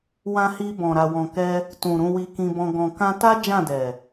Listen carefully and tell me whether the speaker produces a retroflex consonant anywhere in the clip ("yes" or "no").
no